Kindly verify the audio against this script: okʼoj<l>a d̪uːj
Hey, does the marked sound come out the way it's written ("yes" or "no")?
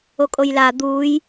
yes